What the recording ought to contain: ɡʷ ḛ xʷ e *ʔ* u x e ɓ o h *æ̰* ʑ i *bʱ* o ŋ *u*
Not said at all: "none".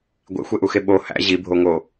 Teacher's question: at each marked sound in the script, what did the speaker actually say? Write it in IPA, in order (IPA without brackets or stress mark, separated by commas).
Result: ʔ, æ̰, bʱ, o